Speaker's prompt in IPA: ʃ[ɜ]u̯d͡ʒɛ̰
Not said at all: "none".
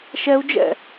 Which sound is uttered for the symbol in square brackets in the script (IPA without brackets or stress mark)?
ɛ